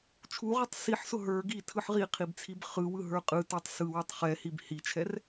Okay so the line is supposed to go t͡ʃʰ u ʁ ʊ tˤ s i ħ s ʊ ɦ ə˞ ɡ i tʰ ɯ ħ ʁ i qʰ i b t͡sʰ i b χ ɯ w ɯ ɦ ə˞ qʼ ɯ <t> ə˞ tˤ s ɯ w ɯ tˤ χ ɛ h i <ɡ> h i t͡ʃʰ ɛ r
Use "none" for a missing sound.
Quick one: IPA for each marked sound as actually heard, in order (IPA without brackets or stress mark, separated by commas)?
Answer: t, b